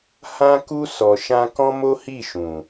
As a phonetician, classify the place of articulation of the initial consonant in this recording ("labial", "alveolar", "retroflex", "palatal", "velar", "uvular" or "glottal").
glottal